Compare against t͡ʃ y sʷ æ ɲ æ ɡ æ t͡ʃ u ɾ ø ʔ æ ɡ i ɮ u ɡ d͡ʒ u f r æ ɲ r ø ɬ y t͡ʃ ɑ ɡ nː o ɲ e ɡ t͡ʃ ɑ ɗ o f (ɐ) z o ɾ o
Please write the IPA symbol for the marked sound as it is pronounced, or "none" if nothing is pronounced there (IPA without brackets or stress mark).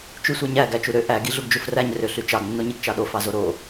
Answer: ɑ